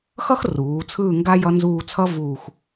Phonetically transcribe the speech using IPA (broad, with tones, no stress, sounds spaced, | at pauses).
x ʌ˥ x r uː˩˧ t͡sʰ ɯː˦˨ ŋ ɡ a˥ j ʌ˧˥ n z uː˦˨ t͡sʰ ʌ˥ v uː˦˨ x